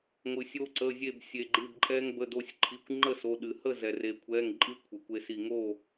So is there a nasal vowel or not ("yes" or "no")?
no